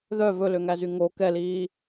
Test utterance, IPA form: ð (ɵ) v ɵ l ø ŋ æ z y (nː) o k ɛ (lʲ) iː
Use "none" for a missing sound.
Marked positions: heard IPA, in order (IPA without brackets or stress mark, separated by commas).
œ, ŋ, l